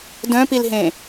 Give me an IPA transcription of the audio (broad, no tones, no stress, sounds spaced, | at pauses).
d œ̃ p i l ɦ ẽ